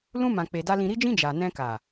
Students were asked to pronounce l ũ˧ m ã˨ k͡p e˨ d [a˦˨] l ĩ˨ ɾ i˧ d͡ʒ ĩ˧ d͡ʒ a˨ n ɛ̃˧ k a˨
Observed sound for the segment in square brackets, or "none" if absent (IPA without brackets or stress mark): a˧